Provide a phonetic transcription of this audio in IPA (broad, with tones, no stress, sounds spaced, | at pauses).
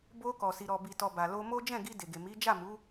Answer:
b o˧ k ɔ˨ s i˨ ɾ ɔ˨ b i˨ t ɔ˨ b a˨ l o˧ m o˦ d͡ʒ ɛ̃˦˨ ɡ i˧ d e˨ ɡ e˨ m i˨˦ d͡ʒ a˦˨ m u˨˦